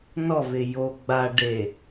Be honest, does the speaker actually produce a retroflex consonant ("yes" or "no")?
yes